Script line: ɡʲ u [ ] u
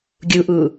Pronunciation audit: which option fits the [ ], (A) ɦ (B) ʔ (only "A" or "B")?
B